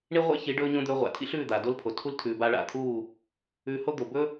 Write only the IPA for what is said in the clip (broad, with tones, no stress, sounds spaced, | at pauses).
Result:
ɳ i˦ ʁʷ ḛ˦ ç i˨˦ ɖ ɵː˧ ɲ õ˧ d̪ ɵː˧ ʁʷ a̰˨ tʰ ḭ˦ ɬ ʉː˦˨ d̪ aː˨ d o˦ l pʰ o˨ tʰ u˦ l tʰ ʉː˨ b aː˧ ɭ a̰˨ t̪ʰ uː˦˨ | ʉː˧ h o˦ d̪ o˨ b ɵ˦